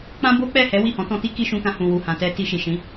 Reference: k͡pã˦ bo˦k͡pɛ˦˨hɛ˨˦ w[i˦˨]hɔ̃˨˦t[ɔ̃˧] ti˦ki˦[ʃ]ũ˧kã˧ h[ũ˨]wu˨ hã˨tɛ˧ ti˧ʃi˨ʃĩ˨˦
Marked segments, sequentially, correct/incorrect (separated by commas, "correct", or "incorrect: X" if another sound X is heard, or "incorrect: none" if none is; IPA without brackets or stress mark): correct, incorrect: ɔ̃˦, correct, correct